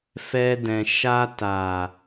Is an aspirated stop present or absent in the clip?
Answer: absent